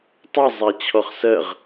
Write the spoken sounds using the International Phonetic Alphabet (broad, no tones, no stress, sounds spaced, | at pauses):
tˤ ʌ zˤ æ t͡ɕʰ ɔ χ s ɜ ʁ